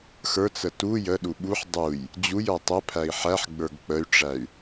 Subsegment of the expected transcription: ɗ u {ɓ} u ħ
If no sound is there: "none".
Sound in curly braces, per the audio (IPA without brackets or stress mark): ɓ